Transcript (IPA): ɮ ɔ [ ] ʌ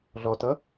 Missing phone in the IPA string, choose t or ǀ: t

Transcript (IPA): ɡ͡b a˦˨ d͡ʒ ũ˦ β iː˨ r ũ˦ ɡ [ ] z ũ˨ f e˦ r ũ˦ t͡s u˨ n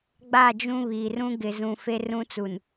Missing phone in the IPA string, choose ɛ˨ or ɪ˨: ɪ˨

